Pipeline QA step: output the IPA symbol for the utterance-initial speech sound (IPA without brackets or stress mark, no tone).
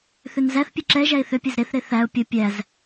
θ